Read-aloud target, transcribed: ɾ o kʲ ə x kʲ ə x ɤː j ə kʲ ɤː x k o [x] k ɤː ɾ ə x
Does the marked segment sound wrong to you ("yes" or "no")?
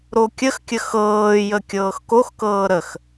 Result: no